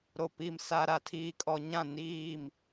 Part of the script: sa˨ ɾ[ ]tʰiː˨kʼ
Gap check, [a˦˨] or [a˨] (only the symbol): a˨